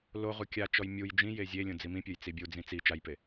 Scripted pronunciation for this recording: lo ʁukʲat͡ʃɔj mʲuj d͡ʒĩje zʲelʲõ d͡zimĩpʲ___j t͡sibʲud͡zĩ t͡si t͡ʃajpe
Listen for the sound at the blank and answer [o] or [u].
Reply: o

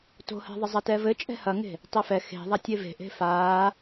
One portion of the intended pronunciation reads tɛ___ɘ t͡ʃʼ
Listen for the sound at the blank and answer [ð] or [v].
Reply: v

